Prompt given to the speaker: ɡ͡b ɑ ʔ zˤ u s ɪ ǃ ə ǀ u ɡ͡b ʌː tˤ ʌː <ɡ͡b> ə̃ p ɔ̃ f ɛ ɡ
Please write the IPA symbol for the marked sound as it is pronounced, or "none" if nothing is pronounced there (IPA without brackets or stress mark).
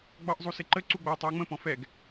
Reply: ŋ͡m